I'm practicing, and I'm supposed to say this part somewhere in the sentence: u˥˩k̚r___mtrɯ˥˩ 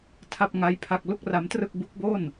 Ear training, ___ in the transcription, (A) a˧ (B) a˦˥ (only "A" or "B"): B